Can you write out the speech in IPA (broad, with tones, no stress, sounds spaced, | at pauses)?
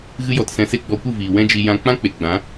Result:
ɣ ɨ˦ j ɔ˧ t s ɛ̃˧ s e˦ ɡ͡b ɔ˧ kʷ ɨ˦˨ v iː˨ w ɛ̃˦ d͡ʒ i˧ j ã˧ k͡p ã˦ k͡p e˨ ɡ͡b ã˨˦